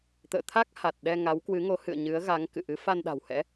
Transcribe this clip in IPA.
t̪ ə̰ː˧˨ t̪ʰ a˦˥ k̚ h a˨˩ t̚ ɗ ɛ˧ ŋ a˨˦ w k w ɨ˨˦ ŋ o˨˦ h ɨ̰˧˨ ə̯ ɲ ɨ˨˦ ə̯ ɣ a˨˦ ŋ k ɨ̰˧˨ ʔ ɨ˨˦ f a˧ n ɗ a̤˨˩ w h ɛ̰˧˥

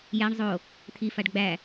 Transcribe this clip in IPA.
j æ ɳ zˤ o | t̪ʰ i f a ɖ ɡ͡b æ

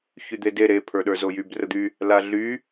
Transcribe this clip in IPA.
ç y d̪ e d e ɾ e pʰ ə˞ ɗ ə˞ z o j y b r ə d̪ y | l a ɮ y

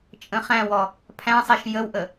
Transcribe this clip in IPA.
t͡ʃʼ ə̃ χ æ̃ w ɔ | pʰ æ̃ sˤ e ʃ j ə w ʔ ə

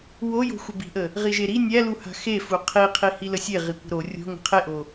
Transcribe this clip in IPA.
w o j o̤ xʷ ə b i̤ ʔ ə | ʁ i ʒ e ɾ i nʲ æ l u h a̤ x e f u qʰ i qʰ i h i l ə sʲ e ʁ i kʷ ə̤ ɾ o rʲ o̤ ŋ ə̤ qʰ e ʔ o

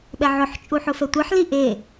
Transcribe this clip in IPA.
ɓ ɛ ʕ ʊ ħ t͡ʃʼ u ħ ʊ f ɛ tʷ e ħ l i ʔ e

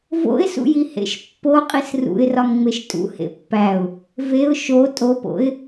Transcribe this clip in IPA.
v o̰ ɪ̯ s ṵ j i h ḛ ʃ pː o qʼ i s r ṵ ɪ̯ r ɒ ŋ ŋ͡m e ʃ tʼ ṵ h ḛ pː æ ʊ̯ | v e ʊ̯ ʃ o tʼ o p o̰ ɪ̯

